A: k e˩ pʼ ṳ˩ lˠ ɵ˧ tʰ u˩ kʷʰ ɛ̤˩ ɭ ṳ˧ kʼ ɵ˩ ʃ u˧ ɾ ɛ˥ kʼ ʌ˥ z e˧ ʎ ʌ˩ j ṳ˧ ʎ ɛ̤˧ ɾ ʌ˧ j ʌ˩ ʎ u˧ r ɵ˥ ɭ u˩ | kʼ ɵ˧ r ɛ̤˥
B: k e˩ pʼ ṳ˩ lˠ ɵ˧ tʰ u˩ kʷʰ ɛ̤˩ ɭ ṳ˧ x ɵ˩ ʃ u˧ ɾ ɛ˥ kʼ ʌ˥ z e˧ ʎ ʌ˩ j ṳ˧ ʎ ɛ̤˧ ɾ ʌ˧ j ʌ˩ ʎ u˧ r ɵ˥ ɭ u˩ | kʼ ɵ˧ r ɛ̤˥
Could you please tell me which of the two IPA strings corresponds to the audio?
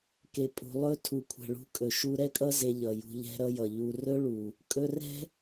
A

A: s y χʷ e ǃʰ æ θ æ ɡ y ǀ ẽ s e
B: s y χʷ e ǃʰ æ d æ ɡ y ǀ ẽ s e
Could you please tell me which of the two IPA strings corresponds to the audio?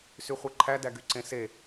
B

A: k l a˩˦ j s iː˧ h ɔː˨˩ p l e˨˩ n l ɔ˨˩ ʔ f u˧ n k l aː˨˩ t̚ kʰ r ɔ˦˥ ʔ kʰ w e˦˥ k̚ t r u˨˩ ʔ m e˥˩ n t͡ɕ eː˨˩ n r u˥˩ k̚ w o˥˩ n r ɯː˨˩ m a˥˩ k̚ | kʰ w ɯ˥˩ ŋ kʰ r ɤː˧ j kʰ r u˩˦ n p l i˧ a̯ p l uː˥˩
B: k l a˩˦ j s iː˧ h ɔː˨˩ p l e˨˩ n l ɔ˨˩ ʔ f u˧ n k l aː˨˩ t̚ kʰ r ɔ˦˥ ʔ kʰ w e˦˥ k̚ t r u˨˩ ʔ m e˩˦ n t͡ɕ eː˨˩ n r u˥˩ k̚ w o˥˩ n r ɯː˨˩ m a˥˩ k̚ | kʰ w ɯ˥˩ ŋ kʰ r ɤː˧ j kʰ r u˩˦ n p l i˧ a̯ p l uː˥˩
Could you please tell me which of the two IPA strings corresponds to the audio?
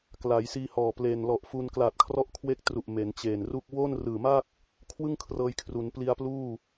B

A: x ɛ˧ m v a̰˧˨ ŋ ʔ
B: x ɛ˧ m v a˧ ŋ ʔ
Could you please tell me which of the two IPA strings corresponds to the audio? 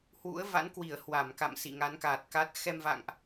A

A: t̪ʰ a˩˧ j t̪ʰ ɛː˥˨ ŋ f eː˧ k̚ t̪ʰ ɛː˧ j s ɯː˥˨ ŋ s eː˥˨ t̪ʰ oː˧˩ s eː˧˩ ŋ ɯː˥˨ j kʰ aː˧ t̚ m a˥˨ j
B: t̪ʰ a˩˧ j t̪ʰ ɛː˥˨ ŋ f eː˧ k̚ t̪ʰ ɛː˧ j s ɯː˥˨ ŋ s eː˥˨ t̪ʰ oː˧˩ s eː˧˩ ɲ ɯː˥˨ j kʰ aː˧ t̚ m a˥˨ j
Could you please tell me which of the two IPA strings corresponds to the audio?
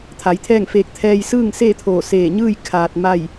B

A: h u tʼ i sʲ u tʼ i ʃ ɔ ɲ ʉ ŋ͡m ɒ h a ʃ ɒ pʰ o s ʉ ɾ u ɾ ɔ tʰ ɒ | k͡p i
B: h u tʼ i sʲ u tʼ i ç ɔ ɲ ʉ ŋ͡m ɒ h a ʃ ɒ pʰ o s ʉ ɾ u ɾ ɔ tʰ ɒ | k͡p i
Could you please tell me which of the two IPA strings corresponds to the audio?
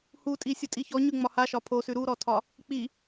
B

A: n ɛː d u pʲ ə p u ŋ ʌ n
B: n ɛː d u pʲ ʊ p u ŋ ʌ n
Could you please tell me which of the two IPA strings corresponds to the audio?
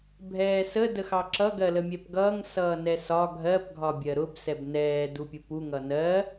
B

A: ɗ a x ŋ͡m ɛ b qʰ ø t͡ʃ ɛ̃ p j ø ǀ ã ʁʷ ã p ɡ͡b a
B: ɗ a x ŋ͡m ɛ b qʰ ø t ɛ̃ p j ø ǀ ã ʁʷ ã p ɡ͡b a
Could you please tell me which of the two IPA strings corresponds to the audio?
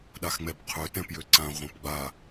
B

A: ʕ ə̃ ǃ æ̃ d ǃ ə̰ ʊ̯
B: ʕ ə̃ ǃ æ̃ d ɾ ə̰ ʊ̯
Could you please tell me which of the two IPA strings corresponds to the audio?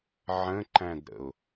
B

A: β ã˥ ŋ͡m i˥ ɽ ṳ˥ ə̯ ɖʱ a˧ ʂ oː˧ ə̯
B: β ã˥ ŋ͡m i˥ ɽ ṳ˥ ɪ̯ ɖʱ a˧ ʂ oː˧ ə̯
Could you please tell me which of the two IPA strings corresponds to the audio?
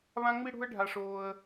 A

